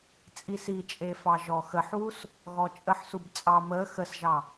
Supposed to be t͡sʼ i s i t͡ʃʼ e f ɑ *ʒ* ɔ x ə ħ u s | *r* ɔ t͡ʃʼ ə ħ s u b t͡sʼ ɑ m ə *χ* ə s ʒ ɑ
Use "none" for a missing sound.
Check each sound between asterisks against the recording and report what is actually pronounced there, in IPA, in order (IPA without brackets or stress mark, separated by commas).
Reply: ʒ, ɣ, x